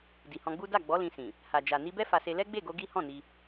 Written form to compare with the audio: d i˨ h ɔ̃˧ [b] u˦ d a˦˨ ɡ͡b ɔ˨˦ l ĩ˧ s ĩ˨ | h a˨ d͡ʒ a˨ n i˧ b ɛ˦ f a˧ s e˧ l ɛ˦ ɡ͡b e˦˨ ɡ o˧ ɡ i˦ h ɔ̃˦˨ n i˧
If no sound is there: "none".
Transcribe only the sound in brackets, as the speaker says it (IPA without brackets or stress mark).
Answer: ɡ͡b